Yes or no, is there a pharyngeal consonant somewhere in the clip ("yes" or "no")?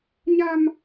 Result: no